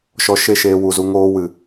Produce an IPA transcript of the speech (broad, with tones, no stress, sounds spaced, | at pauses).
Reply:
ʃ ɔ˧ ʃ e˦˨ ʃ eː˧ w u˨ z u˧ ŋ oː˦ w ɨ˨